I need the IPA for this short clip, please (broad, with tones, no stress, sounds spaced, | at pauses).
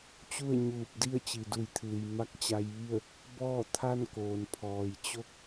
t͡ɕ u˥˨ ə̯ ɲ uː˧˩ p̚ d i˥˨ ə̯ t͡ɕ i˩ d u˧˩ j t̪ʰ ɯː˩ j m a˧ k̚ t͡ɕ a˧ j ʋ i˥˨ ə̯ | b ɔː˥˨ t̪ʰ a˥˨ n k oː˩ n pʰ ɔː˩ j t͡ɕ o˥˨ k̚